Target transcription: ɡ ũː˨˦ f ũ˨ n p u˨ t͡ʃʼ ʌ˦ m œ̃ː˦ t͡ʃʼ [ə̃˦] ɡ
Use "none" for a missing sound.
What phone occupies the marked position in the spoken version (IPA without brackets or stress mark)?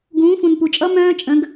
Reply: ə̃˨˦